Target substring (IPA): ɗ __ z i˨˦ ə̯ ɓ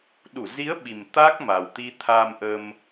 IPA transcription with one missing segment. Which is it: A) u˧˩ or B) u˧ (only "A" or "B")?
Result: A